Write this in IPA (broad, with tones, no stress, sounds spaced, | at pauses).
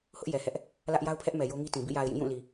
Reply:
h ʊ˦ ʔ j ɛ˨ h ɛ˦ ʔ | l ä˦ ʔ j a˦ ʊ̯ pʰ ɛ˦ ʔ m ɛ˨ j o˦ ŋ i˦ t ĩ˨ b ḭ˦˨ j a˨ ɪ̯ j ĩ˦˨ j ũ˦˨ l i˨